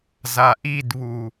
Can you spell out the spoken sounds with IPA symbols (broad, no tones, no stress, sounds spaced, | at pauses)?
z a ʔ i d β u